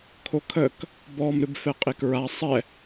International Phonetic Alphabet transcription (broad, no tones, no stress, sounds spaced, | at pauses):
kʰ o kʰ ə k | b ɔ m ɾ ɨ b f ɛ qʼ e k ɹ a sˤ ɛ